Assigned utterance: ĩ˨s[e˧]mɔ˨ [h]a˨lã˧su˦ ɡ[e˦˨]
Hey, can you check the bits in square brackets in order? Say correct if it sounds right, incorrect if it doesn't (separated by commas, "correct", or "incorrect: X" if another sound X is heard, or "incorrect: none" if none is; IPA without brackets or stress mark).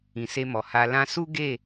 correct, correct, correct